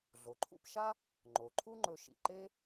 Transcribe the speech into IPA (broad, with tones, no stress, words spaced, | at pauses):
ɮo˩ǃʰṵ˧pʃa˥ | ŋ͡ǃo˩ ǃʰu˥ŋ͡ǃɵ˧ʃḭ˩ ǃe˥